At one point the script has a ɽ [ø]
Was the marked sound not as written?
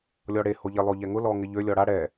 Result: yes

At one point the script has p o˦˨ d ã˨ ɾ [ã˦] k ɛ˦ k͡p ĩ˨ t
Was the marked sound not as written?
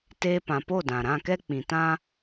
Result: yes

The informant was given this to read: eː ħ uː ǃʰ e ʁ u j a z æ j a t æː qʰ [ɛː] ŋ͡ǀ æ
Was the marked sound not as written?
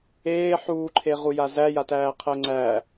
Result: yes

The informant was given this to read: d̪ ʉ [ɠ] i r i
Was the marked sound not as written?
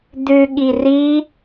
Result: no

